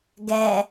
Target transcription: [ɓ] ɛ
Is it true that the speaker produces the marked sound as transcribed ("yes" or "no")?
no